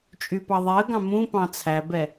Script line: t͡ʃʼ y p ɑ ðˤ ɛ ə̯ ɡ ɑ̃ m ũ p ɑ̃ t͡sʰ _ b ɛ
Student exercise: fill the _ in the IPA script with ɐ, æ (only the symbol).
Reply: æ